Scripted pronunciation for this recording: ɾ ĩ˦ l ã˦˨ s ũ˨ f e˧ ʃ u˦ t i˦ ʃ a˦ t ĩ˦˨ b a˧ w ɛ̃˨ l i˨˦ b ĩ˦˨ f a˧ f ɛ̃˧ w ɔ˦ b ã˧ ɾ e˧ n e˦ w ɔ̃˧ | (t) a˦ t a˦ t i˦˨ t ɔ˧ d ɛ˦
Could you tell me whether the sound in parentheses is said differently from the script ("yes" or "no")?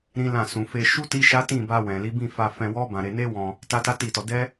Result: no